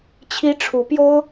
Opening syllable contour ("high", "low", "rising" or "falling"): high